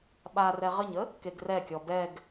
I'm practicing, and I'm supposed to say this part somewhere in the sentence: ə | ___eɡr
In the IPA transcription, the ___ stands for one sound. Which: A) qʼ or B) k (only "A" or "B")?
B